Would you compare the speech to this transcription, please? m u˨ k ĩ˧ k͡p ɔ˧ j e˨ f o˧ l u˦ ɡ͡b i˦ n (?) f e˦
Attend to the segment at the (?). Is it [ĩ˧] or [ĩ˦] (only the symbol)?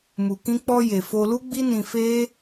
ĩ˧